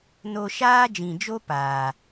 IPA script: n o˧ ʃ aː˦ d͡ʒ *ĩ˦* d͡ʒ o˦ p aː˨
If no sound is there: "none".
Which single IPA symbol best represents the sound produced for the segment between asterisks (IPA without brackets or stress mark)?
ĩ˨